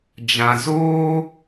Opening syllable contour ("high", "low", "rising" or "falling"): low